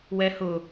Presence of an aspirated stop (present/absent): absent